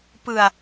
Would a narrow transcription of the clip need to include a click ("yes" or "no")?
no